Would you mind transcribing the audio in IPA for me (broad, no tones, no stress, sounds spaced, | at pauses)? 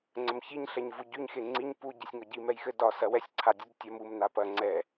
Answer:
ŋ͡ǀ ə m ç i ɲ ɬ ɛ ɲ v u ɟ y ɲ x e ŋ͡ǀ i ɲ p u ɟ i sʲ ŋ ɒ ɟ i m ɛ j x ɘ d ɒ s ɐ w ɛ sʲ ǀʰ a dʲ u d tʲ ɐ m u m n a p ɐ ŋ͡ǀ ɛ